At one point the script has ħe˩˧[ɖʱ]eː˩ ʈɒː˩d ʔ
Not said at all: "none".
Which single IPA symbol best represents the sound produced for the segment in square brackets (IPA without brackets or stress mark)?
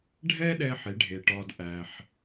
ɖʱ